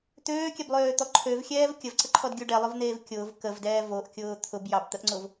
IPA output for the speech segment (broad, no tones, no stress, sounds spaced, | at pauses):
t̪ øː kʲ ɛ b lˠ øː t̪ ɔ ǃʰ ø v xʲ ɛː v kʲ ə v ǀ ə ǃʰ ɔ d ɡʲ u ɖ ɛ lˠ ʊ v n̪ eː v kʲ ʊː v k ə v d ɛː v o ʔ kʲ ʊː t̪ʰ ʊ b j ɑ b t̪ ə ʔ ŋ͡ǀ ʊ v